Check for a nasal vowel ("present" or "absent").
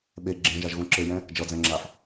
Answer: present